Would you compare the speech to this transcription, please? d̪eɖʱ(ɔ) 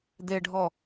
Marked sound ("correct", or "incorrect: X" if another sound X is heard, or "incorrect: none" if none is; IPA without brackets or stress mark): correct